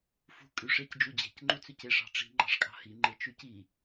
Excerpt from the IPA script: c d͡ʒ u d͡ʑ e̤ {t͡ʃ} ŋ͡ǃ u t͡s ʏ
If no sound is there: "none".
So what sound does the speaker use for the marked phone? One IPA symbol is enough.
c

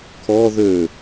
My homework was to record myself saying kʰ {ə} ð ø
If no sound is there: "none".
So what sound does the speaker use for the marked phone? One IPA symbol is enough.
ɔ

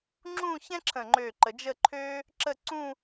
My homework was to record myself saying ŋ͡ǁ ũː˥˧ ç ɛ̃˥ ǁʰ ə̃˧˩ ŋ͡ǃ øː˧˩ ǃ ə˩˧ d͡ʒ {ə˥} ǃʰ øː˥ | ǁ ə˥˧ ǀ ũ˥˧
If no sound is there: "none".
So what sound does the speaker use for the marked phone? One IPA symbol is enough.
ə˥˧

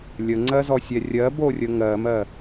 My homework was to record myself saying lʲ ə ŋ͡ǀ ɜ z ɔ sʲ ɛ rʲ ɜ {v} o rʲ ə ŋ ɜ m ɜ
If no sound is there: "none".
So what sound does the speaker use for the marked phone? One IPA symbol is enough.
b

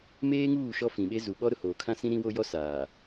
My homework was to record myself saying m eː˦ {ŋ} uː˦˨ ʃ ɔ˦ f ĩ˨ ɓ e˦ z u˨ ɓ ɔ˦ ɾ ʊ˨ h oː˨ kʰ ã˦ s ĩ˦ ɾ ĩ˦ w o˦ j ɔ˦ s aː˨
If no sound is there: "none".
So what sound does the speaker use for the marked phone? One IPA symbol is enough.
ŋ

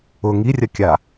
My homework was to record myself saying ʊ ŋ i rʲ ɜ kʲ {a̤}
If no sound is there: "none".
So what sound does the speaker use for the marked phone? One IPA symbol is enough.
a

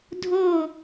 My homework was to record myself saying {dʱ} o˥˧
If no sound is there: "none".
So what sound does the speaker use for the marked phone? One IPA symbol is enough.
dʱ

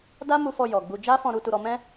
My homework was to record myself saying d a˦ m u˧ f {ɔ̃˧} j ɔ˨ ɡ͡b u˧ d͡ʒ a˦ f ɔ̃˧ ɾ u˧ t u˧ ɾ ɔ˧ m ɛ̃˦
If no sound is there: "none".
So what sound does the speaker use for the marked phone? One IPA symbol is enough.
ɔ˧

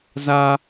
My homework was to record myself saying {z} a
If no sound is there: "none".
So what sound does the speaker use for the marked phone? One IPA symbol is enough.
z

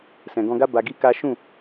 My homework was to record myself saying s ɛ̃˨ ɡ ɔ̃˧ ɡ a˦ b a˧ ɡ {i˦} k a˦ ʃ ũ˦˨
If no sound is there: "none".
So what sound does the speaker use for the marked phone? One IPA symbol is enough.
i˦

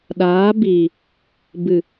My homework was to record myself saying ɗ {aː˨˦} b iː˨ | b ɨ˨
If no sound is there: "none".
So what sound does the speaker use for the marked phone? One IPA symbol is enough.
aː˨˦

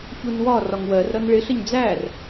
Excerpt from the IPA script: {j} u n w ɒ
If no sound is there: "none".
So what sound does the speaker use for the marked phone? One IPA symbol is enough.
ç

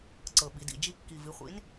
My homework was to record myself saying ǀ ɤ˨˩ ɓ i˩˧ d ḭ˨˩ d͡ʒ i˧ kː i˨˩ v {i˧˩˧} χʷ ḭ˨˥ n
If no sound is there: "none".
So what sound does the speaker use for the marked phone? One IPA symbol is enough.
i˩˧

